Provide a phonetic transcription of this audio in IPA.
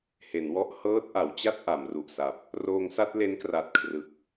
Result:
h e˩˦ n w ɔ˦˥ ʔ h ɤː˦˥ t̚ ʔ a˩˦ w t͡ɕ a˥˩ t̚ ʔ a˩˦ m r u˨˩ ʔ s a˨˩ p̚ | r oː˧ ŋ s a˥˩ t̚ l e˦˥ n k r a˨˩ t̚ kʰ r ɯ˨˩ k̚

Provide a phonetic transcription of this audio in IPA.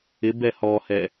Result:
ɪ b ɛ h ɔ h ɛ

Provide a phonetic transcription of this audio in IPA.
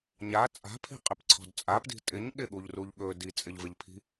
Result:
ɲ a t͡sʼ a̤ pʰ i̤ qʼ ɪ p ǀʰ ɔ̤ d t͡sʼ a p d i̤ tʼ ɪ ɲ ɠ ɪ ɠ u ʎ r u ʎ ɠ ɵ d i t͡sʼ ɪ ʎ v ɪ ʎ pʰ i̤

